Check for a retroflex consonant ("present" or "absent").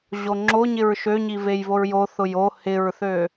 absent